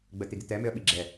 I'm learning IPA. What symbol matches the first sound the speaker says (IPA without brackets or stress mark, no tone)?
ɡ͡b